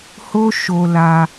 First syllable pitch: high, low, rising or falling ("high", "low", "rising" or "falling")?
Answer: high